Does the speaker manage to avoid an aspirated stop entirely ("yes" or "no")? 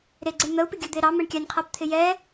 no